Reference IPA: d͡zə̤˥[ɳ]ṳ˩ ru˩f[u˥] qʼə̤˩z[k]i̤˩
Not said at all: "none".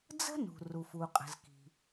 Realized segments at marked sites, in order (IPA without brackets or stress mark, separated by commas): n, u˩, k